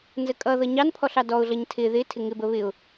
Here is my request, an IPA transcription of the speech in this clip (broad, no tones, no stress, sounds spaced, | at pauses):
n z ə kʼ ʌ ð ʌ ɲ ɑ n pʰ ɔ ɬ ɑ d ɔ ʊ̯ ɮ ʌ ɲ tʰ ɪ ð ɪ tʰ ɪ ŋ ɪ b ə β ɪ ʊ̯